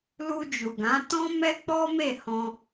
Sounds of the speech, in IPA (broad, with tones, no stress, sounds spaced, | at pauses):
l u˧ d͡ʒ u˨ ɡ ã˨˦ t ɔ̃˦ m ɛ˦ k͡p ɔ˦ m e˦˨ h ɔ̃˧